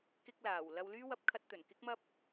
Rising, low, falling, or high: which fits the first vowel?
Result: high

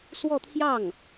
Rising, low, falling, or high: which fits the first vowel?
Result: falling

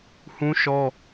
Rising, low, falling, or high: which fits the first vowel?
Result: high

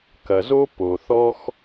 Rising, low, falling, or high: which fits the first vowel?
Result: low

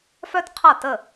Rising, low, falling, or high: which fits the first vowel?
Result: high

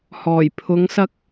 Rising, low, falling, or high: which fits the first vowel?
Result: low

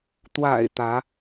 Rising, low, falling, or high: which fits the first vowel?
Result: low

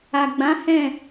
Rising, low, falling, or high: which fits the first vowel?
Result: low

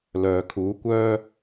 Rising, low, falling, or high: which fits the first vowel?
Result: low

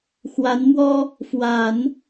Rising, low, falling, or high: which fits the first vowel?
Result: rising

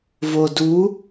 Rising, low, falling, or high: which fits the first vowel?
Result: low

